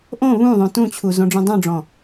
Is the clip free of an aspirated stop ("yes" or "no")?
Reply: no